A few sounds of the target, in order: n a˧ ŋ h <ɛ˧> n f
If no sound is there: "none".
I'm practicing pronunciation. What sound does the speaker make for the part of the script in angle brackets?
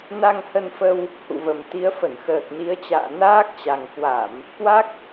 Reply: ə˧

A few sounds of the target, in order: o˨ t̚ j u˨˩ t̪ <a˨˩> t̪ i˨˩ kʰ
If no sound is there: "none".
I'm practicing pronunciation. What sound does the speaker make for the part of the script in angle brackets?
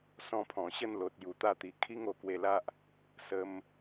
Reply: a˥˧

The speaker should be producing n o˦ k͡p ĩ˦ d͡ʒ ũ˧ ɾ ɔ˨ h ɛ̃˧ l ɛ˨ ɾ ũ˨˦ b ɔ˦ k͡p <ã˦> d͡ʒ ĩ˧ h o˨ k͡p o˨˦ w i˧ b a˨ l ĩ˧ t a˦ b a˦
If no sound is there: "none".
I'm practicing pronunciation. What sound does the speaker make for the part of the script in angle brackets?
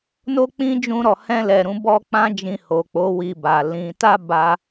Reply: ã˦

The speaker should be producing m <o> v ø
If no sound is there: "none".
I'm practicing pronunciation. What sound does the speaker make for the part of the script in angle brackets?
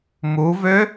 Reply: u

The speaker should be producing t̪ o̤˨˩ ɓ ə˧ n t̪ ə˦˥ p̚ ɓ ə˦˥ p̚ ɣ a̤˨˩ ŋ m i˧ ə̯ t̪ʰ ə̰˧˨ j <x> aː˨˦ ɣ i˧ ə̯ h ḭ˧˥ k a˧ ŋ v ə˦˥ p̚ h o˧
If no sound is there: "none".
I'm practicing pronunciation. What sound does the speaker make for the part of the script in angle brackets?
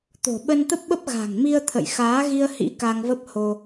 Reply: x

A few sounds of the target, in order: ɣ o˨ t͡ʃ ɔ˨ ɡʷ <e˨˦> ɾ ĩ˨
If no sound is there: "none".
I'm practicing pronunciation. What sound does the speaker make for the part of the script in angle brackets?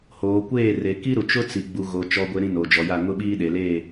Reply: e˨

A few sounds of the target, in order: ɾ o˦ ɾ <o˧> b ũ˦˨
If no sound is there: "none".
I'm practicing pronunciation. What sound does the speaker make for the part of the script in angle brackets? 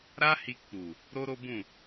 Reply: o˦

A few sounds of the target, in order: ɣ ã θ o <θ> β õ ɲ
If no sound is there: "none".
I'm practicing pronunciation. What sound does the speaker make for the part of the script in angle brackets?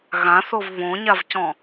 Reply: v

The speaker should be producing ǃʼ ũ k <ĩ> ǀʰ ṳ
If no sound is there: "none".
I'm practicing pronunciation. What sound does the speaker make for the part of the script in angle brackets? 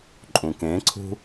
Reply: ẽ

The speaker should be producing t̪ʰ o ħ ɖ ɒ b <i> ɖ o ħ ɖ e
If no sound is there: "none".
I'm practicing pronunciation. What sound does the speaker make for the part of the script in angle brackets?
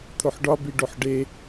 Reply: i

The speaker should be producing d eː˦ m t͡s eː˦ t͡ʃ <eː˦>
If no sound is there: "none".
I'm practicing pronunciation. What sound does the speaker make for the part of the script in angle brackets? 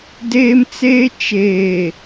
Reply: eː˨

